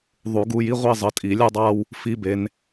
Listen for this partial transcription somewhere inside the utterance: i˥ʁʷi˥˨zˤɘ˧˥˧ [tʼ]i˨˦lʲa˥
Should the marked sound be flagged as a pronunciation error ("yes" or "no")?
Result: no